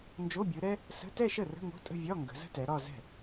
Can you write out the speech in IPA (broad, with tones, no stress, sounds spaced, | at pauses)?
n d͡ʒ o˧˥˧ bʲ ɯ˨˦ ɾ ɛ˥ | s ə̤˧˥˧ t ɛ˥˧ ʃ ə˥˩ r ə̤˧˥˧ ŋ o̤˧˥˧ tʼ ə̤˥˧ vʲ ɒ˧˥˧ ŋ ɡ ə̤˨˦ z ə̤˥ t ɛ˨˦ ɾ ɒ˥˧ z ɛ̤˥˩